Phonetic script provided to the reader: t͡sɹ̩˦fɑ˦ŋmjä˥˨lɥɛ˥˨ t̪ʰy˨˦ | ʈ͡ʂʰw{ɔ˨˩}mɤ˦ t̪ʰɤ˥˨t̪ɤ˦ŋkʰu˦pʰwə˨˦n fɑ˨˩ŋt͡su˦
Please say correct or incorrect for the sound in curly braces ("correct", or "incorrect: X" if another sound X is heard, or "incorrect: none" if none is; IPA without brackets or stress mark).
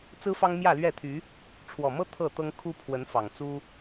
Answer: correct